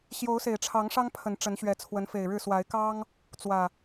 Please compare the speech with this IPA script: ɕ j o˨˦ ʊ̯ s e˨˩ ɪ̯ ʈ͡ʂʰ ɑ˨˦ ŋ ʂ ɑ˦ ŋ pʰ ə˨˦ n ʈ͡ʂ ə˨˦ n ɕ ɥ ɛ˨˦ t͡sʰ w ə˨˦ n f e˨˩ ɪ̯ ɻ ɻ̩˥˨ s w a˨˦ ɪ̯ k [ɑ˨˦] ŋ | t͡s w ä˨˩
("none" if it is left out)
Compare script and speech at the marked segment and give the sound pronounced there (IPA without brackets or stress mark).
ɑ˦